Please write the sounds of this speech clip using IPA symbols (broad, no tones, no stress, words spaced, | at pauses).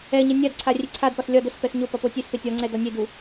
ɛɲə nʲadǀʰa rʲeǀʰadpɒs lʲɒ dəspɛx ɲo pɒpotʲøspe tʲɒŋ͡ǀɛ dɒnʲedu